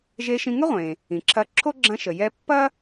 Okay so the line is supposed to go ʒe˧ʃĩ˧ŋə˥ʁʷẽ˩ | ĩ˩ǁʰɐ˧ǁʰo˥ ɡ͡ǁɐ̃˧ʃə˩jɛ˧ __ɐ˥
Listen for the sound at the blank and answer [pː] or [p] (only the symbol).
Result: pː